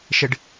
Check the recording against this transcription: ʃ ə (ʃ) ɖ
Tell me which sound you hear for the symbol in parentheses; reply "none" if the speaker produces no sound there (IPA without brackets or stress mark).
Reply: none